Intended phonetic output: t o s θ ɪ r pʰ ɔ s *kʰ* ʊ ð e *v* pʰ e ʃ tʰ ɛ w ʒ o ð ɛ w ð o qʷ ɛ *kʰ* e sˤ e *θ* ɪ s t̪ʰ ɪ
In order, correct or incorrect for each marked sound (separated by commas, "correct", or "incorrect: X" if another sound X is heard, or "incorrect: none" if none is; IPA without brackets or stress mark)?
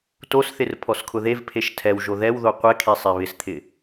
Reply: correct, correct, correct, incorrect: β